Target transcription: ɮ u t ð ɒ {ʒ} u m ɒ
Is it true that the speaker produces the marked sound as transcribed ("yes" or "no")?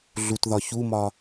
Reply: no